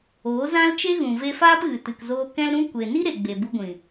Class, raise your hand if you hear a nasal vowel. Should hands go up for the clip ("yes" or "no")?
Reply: yes